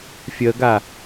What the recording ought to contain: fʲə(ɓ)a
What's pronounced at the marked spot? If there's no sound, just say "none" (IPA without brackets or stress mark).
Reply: ɡ